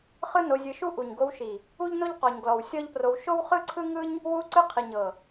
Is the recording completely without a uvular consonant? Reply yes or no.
no